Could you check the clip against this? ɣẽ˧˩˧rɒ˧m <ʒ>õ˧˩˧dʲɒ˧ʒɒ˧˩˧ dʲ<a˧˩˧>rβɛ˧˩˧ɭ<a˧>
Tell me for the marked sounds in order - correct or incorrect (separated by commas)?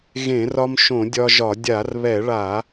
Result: incorrect, correct, incorrect